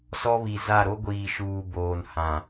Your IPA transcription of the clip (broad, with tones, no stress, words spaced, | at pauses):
sɔ˦βi˨ za˦˨ ɾo˦ɡʷiː˨ʃuː˨ boː˨nhã˨